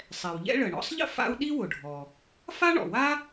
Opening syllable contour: low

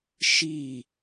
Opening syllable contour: falling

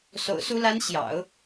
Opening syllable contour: low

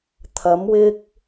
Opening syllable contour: rising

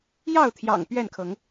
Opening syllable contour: falling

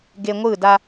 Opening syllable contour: low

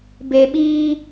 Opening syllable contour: low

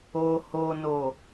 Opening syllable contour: low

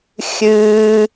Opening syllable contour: high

